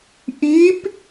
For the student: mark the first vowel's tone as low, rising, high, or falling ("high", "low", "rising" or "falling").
rising